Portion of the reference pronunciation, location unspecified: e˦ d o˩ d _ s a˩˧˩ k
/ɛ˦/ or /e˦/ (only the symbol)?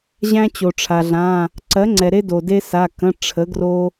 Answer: e˦